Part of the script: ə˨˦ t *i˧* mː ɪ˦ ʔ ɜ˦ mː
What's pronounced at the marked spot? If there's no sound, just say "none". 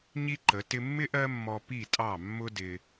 ɪ˧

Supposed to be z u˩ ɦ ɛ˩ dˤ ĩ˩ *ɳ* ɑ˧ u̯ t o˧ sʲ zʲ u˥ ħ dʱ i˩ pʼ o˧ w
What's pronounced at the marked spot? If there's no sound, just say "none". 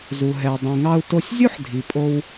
ŋ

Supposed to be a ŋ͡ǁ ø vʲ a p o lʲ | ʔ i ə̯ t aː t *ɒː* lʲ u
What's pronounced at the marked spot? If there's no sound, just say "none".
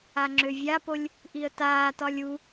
ɒ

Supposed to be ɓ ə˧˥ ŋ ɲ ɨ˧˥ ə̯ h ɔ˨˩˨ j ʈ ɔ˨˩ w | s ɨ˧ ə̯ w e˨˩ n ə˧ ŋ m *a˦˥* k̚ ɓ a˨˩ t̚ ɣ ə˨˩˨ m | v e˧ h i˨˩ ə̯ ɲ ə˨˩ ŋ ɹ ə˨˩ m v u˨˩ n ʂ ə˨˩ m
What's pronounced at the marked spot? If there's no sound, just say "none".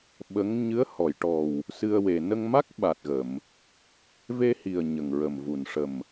a˦˥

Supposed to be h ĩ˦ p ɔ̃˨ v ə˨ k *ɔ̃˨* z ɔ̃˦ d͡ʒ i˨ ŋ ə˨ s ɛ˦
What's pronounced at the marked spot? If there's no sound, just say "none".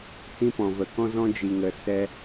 ɔ̃˦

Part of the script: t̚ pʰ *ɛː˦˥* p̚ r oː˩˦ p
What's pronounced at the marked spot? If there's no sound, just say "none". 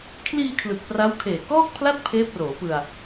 eː˦˥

